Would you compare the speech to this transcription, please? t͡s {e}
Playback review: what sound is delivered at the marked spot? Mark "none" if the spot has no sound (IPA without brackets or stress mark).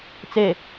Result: e